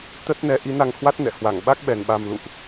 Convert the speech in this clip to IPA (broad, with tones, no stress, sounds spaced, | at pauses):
t̪ ə˦˥ t̚ n ɛ˨˦ ʔ i˨˦ n a˧ ŋ h w a˦˥ t̚ n ɛ̰˧˨ h w a˧˩ ŋ ɓ a˦˥ k̚ ɓ ɛ˨˩ n ɓ a˨˩ m l ṵ˧˨ ʔ